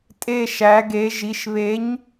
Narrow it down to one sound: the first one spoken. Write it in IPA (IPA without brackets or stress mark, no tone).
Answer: tʼ